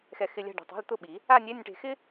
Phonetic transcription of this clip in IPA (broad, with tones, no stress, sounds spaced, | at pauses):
x ɛ˧ x ɪ˧˥˧ lʲ a̤˥˧ ɖ o̤˧ tˤ e̤˧˥˧ l t̪ ʊ˥˧ ɓ i˨˩˦ | a˥˧ nʲ ɛ˧˥˧ nʲ ʈ e̤˧ x ɪ˥